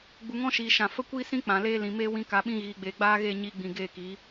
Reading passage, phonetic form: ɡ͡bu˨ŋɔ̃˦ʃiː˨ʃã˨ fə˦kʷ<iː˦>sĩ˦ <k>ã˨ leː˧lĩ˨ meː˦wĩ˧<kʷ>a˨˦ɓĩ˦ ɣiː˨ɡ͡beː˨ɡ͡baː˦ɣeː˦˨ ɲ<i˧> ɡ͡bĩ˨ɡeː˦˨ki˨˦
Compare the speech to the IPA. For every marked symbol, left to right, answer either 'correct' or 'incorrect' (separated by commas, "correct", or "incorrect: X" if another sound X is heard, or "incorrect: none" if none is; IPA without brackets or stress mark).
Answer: correct, incorrect: k͡p, incorrect: k, correct